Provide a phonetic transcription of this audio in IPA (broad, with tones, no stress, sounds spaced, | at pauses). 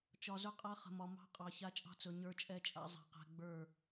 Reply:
t͡ʃ ɒ˨ z ɵ˦ qʼ a˦ χ ə̤˨ m ɒ˨ m ɑ̤˦ qʼ ɑ˨ ç a˦ t͡ʃʼ ɑ̤˦ t͡s ɵ˨ ɲ ə˞˦ t͡ʃʼ ɛ˦ t͡ʃʼ a̰˦ zˤ ɛ̤˨ q ɛ̤˨ ɡ͡b ə˞˦˨